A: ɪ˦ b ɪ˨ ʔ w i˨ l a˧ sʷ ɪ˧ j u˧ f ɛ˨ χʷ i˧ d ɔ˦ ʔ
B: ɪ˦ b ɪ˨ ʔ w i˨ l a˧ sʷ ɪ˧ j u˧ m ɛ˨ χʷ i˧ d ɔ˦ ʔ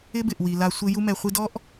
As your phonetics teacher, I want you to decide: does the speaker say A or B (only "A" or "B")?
B